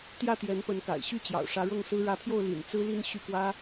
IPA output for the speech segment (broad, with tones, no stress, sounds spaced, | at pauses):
t̪ j ä˥˩ t̪ j ɛ˧˥ n p ə˧˥ n k a̰˨˩ ɪ̯ ɕ y˥˩ t͡ɕ j ɑ̰˨˩ ʊ̯ ʂ ä˧˥ ɻ ɤ˥˩ ŋ s ɹ̩˥ ɻ ä˧˥ pʰ j o˥˩ ʊ̯ l ḭ˨˩ n t͡s ɹ̩˥ l i˥˧ n ɕ y˥˩ k w ä˥